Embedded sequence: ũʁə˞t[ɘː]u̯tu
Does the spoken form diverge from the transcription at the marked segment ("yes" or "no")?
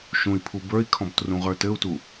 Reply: yes